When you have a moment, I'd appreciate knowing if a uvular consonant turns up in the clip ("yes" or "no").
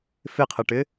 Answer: yes